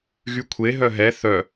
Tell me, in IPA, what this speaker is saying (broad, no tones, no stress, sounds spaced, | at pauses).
ɣ y kʷʰ e ɦ œ ɦ ɛ θ œ